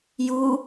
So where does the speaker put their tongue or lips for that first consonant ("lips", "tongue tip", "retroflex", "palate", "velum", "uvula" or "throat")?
palate